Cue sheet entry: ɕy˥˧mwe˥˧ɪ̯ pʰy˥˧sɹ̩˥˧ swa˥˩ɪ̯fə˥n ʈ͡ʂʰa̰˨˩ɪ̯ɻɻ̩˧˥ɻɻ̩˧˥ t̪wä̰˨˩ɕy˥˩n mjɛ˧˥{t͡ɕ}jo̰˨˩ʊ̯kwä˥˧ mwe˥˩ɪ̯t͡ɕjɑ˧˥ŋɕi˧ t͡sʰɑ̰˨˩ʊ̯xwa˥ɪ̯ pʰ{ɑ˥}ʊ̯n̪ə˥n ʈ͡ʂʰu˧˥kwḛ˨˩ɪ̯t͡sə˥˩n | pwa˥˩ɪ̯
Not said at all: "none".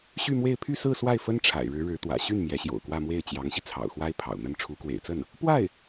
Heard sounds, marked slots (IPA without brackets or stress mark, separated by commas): ɕ, ɑ̰˨˩